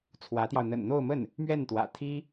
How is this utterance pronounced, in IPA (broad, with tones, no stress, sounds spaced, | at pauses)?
t͡sʰ w ä˧˥ t̪ j ɑ˧ ʊ̯ n̪ ə̰˨˩ n n̪ o˥˧ ʊ̯ m ə˥˩ n | m ɥ ɛ˥˩ n t̪ w ä̰˨˩ t̪ʰ i˥